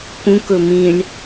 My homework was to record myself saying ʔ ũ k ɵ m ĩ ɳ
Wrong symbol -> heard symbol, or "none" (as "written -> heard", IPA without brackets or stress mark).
ʔ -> k